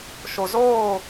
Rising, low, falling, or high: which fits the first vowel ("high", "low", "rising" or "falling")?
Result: low